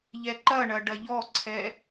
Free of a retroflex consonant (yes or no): no